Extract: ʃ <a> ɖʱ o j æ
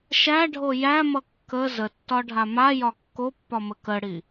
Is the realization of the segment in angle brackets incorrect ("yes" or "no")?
yes